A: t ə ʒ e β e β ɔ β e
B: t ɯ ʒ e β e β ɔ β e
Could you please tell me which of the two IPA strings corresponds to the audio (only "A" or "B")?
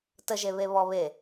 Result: A